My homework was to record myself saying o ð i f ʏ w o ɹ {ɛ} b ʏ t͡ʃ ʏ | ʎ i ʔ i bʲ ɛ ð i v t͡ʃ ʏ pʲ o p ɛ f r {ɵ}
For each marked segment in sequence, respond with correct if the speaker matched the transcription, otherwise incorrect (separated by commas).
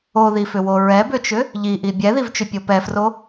correct, incorrect